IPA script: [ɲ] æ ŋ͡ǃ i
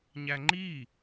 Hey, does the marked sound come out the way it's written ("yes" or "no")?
yes